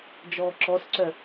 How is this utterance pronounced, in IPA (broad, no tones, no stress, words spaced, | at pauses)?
d͡ʒɔːǁɔsǀœ